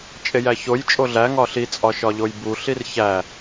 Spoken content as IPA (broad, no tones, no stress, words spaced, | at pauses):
t͡ʃʼejæçojt͡ʃʼo ɮæ ŋɒɬit͡sʼɒʃɒ ʎojbuɬir çæ